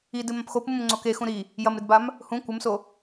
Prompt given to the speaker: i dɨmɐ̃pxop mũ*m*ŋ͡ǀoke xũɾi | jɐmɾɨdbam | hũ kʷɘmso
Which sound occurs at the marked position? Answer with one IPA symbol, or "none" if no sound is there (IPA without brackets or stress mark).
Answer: m